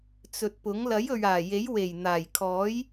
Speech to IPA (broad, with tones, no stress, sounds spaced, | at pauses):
t͡s ɵ˨ t̚ p ʊ˨˥ ŋ l ɐ˨˥ j ɵ˨ ɥ aː˨˩ j e˨˥ j w e˨˩ j n̪ aː˨˩ j kʰ ɔː˨˥ j